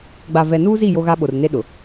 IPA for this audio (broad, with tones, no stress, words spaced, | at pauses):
ɡ͡ba˨vɛ˨nuː˦zi˦˨ jo˦ɣa˦ɓo˨r ne˦ɗʊ˨